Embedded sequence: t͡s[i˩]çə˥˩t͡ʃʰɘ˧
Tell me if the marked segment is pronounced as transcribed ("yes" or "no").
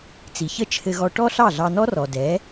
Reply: yes